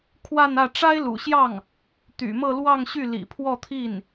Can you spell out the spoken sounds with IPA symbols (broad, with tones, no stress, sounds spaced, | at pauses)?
kʰ w a˥˧ n ä˥˩ ʈ͡ʂ a˥ ɪ̯ l ṵ˨˩ ɕ j ɑ˥˩ ŋ | t̪ y̰˨˩ m ɤ˥˧ l w ɑ˥˧ ŋ ɕ y˥˩ l ḭ˨˩ pʰ w ɔ˥˧ t̪ʰ i˥˩ n